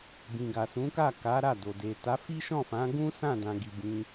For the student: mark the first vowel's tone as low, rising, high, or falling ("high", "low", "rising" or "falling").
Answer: low